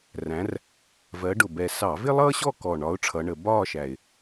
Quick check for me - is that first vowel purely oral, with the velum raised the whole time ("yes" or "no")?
no